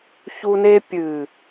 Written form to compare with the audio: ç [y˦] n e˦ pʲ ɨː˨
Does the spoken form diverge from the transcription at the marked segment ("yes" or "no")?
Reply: yes